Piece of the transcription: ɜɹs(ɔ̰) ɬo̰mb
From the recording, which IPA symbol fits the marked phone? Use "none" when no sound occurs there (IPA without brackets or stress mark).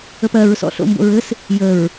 ɔ̰